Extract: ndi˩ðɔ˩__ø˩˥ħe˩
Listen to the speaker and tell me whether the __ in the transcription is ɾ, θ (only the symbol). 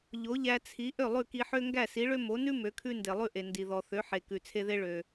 θ